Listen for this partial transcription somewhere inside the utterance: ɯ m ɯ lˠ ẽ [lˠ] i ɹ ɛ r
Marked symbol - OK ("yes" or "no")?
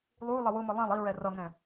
yes